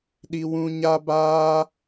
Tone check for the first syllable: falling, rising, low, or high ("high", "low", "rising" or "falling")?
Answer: high